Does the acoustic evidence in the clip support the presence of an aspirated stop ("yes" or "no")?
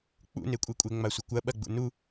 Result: no